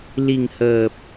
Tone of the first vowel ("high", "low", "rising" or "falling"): low